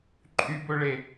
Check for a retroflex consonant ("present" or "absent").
present